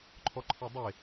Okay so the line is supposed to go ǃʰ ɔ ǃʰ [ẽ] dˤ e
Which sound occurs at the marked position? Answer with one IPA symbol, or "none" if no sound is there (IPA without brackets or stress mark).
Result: e